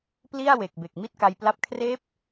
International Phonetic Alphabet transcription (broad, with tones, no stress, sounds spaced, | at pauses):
p l i˥˩ a̯ w e˨˩ k̚ b e˨˩ k̚ m i˥˩ t̚ k a˧ j p l a˥˩ p̚ kʰ r eː˦˥ p̚